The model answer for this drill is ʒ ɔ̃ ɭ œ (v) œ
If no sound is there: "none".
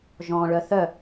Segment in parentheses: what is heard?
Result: θ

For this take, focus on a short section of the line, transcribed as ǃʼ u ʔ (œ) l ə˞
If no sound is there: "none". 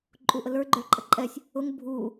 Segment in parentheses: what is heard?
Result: ə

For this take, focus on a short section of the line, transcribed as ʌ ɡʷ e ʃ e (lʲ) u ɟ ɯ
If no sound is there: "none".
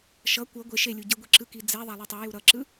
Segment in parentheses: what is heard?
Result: lʲ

